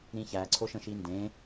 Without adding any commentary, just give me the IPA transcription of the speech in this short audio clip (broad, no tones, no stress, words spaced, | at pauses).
ɾĩçæ ǀʰoʃə̃ʃindẽ